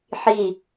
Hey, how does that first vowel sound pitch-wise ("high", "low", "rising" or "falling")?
falling